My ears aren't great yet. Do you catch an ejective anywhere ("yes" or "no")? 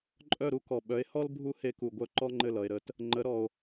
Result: yes